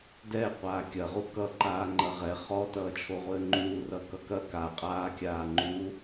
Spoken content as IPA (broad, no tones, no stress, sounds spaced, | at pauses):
d ɛ qʷ aː kʲ ɐ ʁ u k ʌ ǃ aː ŋ͡ǃ ɐ ʁ ɛ χ ɔ t ʌː t͡ʃʰ o ʁʷ ɘː ŋ͡ǃ uː r ʌ k ʌ k ɐ k a qʼ aː kʲ aː ŋ͡ǃ u